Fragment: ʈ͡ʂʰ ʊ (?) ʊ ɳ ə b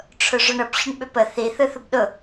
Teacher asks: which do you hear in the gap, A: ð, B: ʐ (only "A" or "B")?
B